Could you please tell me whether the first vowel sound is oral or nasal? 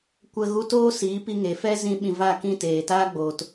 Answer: oral